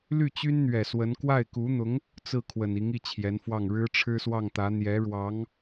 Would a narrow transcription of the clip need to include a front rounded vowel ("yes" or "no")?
yes